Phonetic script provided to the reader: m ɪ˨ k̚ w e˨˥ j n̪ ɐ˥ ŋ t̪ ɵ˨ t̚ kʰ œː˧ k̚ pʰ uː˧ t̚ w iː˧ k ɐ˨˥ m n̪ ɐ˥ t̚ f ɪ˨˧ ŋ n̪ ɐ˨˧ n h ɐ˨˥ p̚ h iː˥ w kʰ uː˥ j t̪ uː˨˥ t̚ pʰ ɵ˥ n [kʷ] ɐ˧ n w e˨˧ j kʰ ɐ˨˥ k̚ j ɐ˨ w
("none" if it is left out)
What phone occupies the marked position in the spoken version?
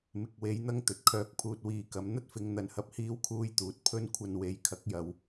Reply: kʷʰ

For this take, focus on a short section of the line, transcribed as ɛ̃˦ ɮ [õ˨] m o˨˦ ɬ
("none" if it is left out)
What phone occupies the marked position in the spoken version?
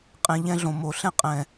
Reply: õ˨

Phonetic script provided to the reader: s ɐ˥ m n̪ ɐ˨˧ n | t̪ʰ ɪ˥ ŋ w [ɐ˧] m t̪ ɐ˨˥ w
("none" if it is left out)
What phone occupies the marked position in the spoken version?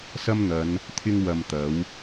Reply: ɐ˧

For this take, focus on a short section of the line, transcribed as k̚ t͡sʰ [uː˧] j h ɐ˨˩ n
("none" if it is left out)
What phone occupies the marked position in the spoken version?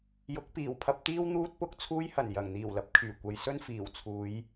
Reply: uː˧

